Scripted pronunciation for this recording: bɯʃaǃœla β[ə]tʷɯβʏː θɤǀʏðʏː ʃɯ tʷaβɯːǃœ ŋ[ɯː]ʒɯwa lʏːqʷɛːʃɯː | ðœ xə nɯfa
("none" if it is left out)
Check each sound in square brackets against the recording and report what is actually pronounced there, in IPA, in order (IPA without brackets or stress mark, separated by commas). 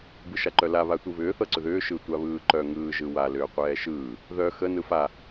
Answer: a, ɯː